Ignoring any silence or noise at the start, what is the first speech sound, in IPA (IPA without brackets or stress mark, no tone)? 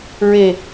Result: ɹ